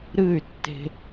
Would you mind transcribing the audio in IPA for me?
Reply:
ɾ ɨː˦˨ y̯ tː e̤˧

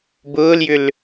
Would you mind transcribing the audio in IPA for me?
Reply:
b ʊː l j ʏ l

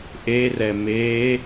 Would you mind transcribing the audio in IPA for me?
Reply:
ʔ e r ɛ m e

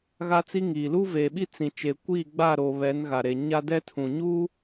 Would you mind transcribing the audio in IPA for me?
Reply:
ɣ a˦ t͡s i˦ ŋ iː˨ l uː˦ v eː˨ ɓ i˦ t͡s ĩ˨ t͡ʃ e˨ kʷ iː˦˨ ɡ͡b a˦˨ ɾ oː˨ β ɛ˨˦ n ɣ a˨ ɾ e˨ ɲ a˦ d ɛ˦ tʰ ũ˨ ɲ uː˦

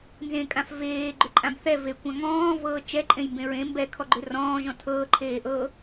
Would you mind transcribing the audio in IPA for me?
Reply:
n z ẽ kʼ ã f v eː ɡ͡ǃ ʏ ǃʼ ã b θ ɛ v e kʷ ã ŋ ɔ̃ː v ɤː t͡ʃ ɛ ǃʼ ẽ j m b ẽ ɹ ẽ m b ɛ kʰ ɔ ɡ͡ǃ ʏ r ɔ̃ː ʒ ɔ̃ tʰ ɤː ǃʰ eː ʔ ɤ

